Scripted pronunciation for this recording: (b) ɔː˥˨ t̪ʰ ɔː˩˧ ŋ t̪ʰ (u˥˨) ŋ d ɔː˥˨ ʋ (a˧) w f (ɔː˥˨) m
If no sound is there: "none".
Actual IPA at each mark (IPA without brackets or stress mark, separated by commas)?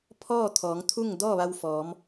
pʰ, u˥˨, a˧, ɔː˩˧